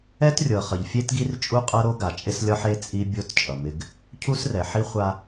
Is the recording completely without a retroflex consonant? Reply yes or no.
yes